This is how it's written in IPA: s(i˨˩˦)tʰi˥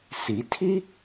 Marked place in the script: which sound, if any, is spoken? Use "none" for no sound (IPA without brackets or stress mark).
i˨˩˦